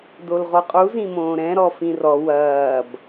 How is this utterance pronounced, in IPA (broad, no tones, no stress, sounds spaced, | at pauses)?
d o l ʁ o qʼ u z ĩ m õː ɾ ɛ̃ ɾ ɔ f ĩ r ɔ w ɐː b